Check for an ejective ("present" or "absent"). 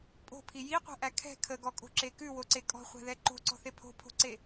present